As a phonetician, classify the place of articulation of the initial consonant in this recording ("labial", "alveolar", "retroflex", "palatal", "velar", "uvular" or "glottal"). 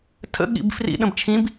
alveolar